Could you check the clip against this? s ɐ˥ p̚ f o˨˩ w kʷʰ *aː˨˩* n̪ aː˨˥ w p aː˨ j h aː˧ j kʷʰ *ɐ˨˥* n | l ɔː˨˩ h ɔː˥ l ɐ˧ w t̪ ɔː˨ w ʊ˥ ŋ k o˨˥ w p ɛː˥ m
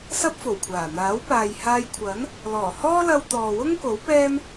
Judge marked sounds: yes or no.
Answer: yes, yes

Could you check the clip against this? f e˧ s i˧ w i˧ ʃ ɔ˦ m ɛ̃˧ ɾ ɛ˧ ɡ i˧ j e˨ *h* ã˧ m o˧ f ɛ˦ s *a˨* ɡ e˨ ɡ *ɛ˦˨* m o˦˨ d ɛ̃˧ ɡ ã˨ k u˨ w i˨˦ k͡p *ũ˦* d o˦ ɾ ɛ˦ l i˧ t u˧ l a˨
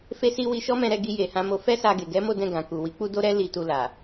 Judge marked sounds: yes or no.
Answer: yes, no, no, no

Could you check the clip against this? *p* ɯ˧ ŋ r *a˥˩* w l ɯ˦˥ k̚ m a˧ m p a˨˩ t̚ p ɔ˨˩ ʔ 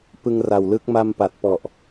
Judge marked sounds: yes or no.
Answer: yes, no

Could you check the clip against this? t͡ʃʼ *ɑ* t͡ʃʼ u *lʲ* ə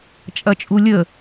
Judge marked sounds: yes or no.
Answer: no, yes

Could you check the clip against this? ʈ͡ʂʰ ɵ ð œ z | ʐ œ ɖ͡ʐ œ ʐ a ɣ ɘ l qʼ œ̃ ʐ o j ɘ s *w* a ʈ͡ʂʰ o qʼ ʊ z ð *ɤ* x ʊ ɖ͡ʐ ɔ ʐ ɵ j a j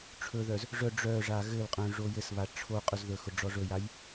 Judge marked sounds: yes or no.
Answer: no, no

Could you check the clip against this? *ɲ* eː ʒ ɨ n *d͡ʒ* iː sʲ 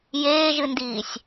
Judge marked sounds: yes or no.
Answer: no, no

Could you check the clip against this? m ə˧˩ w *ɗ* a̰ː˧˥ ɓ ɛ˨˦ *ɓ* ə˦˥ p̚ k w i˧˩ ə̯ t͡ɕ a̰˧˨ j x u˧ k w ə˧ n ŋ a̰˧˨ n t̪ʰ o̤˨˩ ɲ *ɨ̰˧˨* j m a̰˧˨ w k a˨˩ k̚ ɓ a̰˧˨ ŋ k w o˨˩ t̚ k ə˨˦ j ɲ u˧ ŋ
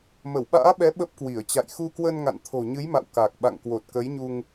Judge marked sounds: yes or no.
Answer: no, yes, no

